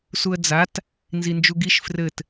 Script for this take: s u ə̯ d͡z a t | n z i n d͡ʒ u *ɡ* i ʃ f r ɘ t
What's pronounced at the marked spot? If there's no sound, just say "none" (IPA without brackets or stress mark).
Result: ɡ